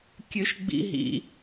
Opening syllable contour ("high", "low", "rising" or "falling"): high